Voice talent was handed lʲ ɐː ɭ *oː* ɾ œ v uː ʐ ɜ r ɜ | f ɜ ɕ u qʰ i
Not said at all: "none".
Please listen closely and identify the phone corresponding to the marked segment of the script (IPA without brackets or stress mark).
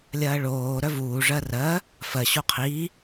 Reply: oː